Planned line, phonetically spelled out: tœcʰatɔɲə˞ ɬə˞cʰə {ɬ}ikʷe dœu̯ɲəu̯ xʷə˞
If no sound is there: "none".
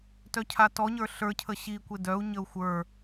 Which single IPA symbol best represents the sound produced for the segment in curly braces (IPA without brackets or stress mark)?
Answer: ɕ